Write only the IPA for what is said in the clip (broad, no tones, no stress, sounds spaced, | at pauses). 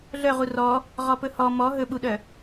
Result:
ɮ œ ʁ u r ɔ | ʁ ɔ p ɵ h ɔ m ɔ ɦ ɵ ɓ u ɗ œ